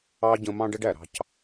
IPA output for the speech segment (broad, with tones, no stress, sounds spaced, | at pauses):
ɑ˦ ɟ ə̃˧ m ɑ̃˦ ɖ ə˦ ɖ æ˨ ɾ ɑ̤˧ c